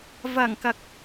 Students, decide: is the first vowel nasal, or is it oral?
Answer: oral